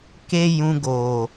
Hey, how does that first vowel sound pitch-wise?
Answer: high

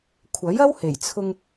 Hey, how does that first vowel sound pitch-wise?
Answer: rising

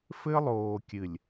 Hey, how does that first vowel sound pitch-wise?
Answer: high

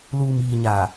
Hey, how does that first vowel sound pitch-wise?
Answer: low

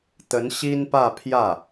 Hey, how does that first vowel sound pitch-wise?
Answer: rising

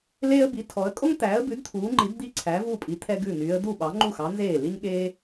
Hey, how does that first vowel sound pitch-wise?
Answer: high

